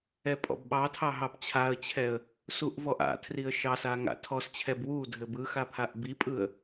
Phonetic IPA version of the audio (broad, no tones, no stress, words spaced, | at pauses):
ɛpʼɔ̰bɓɑtʰɑ ɦɑbt͡ɕʰaə̯t͡ɕʰɛə̯ | suʔvɔʔa̰tʰriə̯ ʃɑsa ŋa̰tʰɔst͡ɕʰɛb wu dʱɘbɯxa pʰaʔbipʼɯə̯